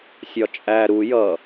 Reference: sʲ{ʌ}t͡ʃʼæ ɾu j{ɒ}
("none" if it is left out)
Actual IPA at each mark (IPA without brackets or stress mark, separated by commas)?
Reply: ɒ, ʌ